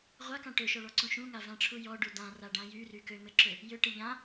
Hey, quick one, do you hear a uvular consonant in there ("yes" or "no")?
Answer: yes